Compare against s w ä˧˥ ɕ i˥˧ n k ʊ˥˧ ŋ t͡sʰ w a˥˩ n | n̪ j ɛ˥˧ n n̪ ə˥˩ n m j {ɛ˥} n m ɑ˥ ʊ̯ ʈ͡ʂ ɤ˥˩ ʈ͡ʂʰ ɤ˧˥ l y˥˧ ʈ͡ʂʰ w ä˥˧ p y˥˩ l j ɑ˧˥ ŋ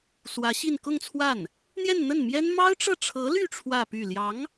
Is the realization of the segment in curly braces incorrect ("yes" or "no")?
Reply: no